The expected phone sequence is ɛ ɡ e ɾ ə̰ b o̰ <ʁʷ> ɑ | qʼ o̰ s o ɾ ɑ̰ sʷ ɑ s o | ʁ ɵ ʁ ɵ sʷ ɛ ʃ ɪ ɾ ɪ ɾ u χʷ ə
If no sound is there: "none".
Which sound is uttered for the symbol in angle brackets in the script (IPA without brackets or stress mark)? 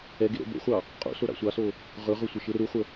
χʷ